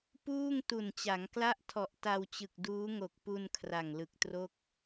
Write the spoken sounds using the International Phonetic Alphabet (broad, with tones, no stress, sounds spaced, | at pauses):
p uː˥˩ ŋ t u˨˩ n t͡ɕ a˩˦ ŋ k l a˥˩ ʔ tʰ ɔ˨˩ ʔ t a˧ w t͡ɕ ɯ˨˩ k̚ d uː˦˥ ŋ o˨˩ k̚ p u˧ n kʰ r a˨˩ ŋ l ɯ˨˩ k̚ t r o˥˩ k̚